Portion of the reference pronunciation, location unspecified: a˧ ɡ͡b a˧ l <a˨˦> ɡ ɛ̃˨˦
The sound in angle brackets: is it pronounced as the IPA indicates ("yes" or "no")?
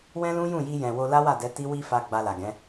no